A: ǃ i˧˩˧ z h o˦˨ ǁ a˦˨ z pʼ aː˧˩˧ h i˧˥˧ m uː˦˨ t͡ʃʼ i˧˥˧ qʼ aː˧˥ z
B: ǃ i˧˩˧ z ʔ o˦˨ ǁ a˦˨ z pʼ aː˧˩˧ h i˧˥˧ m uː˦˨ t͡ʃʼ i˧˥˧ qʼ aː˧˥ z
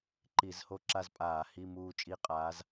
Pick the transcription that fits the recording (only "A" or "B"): A